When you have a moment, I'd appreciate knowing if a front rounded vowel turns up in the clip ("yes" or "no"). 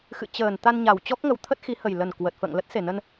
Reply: no